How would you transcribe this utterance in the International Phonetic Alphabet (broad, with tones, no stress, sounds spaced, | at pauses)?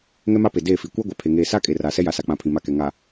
ŋ ɛ˦ m a˦ p e˨ d eː˦˨ f i˨ kʷ a˦ ɡʷ a˨ pʰ e˨ ŋ eː˨ s a˦ kʼ e˨ r a˨ s ɛ˦ j a˨ s a˨ k͡p ã˨ pʰ ĩ˨ m a˨ k ɛ˨ ŋ a˨